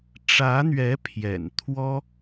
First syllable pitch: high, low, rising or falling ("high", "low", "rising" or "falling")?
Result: rising